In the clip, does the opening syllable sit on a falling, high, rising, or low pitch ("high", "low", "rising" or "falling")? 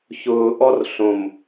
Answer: low